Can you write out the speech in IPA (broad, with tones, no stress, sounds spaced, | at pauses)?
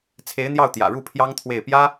t͡sʰ e˧˥ ɪ̯ n̪ j ɑ˥˩ ʊ̯ t̪ j ä̰˨˩ ɻ u˥˩ pʰ j ɑ˥ ŋ t̪ʰ w e˥˩ ɪ̯ p j ä˥